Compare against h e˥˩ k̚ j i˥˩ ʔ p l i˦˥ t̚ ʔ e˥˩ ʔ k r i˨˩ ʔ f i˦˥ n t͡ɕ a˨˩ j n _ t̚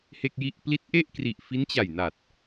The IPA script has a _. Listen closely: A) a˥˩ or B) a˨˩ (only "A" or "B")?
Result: B